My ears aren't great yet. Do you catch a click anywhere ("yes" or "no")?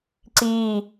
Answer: yes